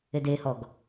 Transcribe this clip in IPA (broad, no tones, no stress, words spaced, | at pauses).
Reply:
edehɔɡ